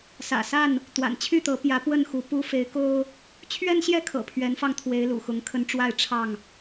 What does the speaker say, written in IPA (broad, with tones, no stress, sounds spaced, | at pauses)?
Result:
s ä̰˨˩ s a˥˨ n | t̪ w a̰˨˩ n t͡ɕʰ y˥˨ t̪ ɤ˨˦ p j ä˨˦ p w ə˥˨ n x u˨˦ p u˦ f e˨˦ ɪ̯ k o˦ ʊ̯ | t͡ɕʰ ɥ ɛ˦ n ɕ j ɛ˥˨ kʰ ɤ̰˨˩ pʰ ɥ ɛ˨˦ n f ɑ˧ ŋ t̪ʰ w e˨˦ ɪ̯ l ṵ˨˩ x ʊ˨˦ ŋ kʰ ə˨˦ n ʈ͡ʂ w a˥˨ ɪ̯ ʈ͡ʂʰ ɑ˥˨ ŋ